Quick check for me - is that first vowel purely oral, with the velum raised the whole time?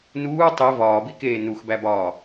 yes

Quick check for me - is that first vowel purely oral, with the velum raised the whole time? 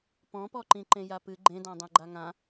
no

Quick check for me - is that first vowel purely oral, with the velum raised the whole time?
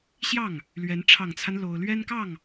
yes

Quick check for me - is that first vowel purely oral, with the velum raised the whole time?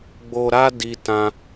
yes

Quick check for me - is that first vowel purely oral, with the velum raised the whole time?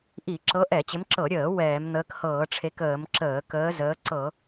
yes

